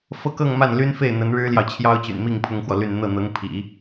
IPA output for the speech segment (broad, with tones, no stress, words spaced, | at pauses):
fɤ˥kɤ˥˧ŋma˥˩nly˥n fe˥˩ɪ̯n̪ə˧˥nɻɻ̩˥ljɑ˨ʊ̯ t͡ɕʰjɑ˥ʊ̯t͡ɕy̰˨˩nmi˥˩ŋ pʰʊ˥ŋxwɔ˨ly˥˧n n̪ɤ˥˩ n̪ɤ˧˥ŋpʰḭ˨˩˦